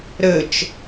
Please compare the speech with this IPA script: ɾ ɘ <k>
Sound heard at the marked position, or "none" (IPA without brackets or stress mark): t͡ʃ